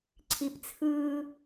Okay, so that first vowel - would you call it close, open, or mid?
close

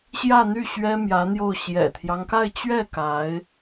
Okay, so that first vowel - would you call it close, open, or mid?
open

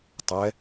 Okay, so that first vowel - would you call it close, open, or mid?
mid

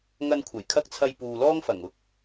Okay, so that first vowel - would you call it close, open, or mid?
open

